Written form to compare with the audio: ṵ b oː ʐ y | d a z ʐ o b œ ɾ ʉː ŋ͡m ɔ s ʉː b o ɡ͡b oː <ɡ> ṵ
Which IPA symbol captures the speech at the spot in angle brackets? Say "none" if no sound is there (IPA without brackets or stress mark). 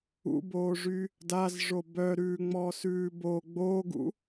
ɡ